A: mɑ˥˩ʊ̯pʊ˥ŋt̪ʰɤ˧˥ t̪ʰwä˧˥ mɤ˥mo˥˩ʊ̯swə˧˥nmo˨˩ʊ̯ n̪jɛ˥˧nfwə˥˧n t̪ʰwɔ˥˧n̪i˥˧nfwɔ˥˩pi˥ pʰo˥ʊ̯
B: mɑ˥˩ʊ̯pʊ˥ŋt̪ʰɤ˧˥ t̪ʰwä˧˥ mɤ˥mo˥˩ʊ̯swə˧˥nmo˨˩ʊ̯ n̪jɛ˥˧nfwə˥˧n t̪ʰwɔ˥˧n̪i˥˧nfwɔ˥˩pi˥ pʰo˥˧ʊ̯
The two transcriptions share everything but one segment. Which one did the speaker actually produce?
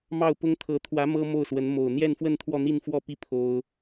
A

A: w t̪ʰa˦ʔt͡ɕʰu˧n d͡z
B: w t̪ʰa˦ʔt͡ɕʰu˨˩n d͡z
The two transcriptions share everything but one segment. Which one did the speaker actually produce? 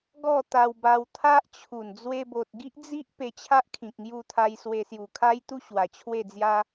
B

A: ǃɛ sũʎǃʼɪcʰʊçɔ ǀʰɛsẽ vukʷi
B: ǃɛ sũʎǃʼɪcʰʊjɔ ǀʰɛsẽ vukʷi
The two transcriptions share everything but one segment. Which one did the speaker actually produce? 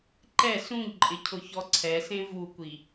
A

